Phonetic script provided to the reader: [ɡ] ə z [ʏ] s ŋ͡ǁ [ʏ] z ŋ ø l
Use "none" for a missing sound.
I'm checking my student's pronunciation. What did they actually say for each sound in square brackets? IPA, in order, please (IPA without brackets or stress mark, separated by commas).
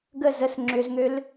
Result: ɡ, ə, ʏ